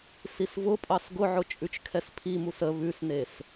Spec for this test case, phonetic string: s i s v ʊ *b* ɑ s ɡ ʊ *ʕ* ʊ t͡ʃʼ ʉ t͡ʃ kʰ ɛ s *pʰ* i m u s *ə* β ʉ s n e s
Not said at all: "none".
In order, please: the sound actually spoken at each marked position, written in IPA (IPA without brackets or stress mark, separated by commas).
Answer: pʼ, ʕ, pʰ, ə